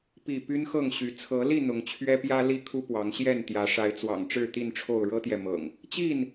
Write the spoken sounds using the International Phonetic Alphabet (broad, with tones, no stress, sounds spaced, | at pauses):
p i˥˨ p y˦ n x ɤ˥˨ ŋ ɕ y˨˦ t͡sʰ ɤ˨˦ l i˥˨ n̪ ʊ˨˦ ŋ t͡ɕʰ ɥ ɛ˦ p j ä˦ l i˥˨ kʰ u˦ p w ɑ˨˦ ŋ ɕ j ɛ˥˨ n t̪ j ä˨˦ ʂ a˨˦ ɪ̯ t͡s w ɑ̰˨˩ ŋ ʈ͡ʂ ɻ̩˥˨ t̪ i˥˨ n ʈ͡ʂʰ o˥˨ ʊ̯ ɻ ɤ˦ t̪ j ɛ˨ m ɤ̰˨˩ ŋ | t͡ɕ i˥˨ n